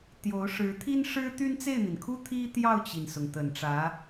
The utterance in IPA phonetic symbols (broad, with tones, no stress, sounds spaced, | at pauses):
t̪ j o˧˥ ʊ̯ ʂ ɻ̩˧˥ t̪ʰ i˥ n ʂ ɻ̩˥ t̪ y˥ n t͡s e˥˩ ɪ̯ n̪ i˩ n kʰ u˥ t̪ʰ i˥ t̪ j ɑ˥˩ ʊ̯ t͡ɕ i˩ n s ʊ˩ ŋ t̪ ə˨˩ n ʈ͡ʂ ä˧˥